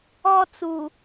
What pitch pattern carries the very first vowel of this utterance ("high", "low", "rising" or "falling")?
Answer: high